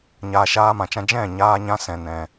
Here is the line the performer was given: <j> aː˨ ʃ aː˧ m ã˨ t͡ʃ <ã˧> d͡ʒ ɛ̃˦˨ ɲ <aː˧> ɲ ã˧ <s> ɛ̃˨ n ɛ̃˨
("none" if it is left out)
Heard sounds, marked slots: ɲ, ã˧, aː˧, s

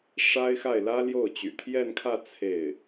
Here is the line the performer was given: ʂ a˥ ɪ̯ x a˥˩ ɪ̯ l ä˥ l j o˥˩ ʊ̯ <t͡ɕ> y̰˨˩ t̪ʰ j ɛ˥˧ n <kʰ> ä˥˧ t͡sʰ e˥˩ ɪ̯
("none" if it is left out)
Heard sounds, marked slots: t͡ɕ, kʰ

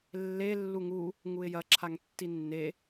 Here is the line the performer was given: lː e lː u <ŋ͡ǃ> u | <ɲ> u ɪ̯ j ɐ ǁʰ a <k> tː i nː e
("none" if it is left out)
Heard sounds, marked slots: ŋ, ŋ, ŋ

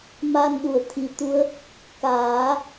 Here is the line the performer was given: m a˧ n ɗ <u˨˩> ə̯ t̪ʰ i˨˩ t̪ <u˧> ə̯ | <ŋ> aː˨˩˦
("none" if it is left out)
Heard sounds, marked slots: u˨˩, u˧˥, k

